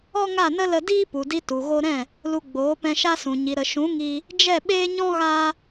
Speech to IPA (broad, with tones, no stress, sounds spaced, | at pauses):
ɔ˦ ŋ a˦˨ n ə˦ l ə˧ d iː˦ p u˨ d i˧ t u˨ ɣ o˧ ɾ ɛ̃˦˨ | l u˧ ɡ͡b oː˨˦ p ɛ̃˧ ʃ a˦ s ũ˨ ɲ i˨ ɾ ə˨ ʃ ũ˨˦ ŋ iː˧ | d͡ʒ ɛ˦˨ ɓ eː˦ ɲ ɔ̃˦ ɣ aː˦